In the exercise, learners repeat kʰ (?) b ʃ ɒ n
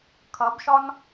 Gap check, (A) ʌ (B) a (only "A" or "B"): A